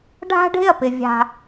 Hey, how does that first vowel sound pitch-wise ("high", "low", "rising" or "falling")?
high